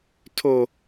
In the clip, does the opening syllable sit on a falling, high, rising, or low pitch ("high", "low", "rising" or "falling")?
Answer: high